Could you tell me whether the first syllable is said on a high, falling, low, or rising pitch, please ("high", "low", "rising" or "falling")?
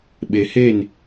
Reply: low